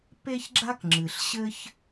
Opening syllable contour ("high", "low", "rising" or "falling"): high